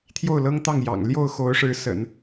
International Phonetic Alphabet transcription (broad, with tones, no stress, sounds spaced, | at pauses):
t̪ʰ j o˥˩ ʊ̯ l ɤ˥ ŋ t̪ ɑ˥˩ ŋ j ɑ̰˨˩ ŋ l j o˥˩ ʊ̯ x o˧˥ ʊ̯ ʂ ɻ̩˧˥ s ə̰˨˩˦ n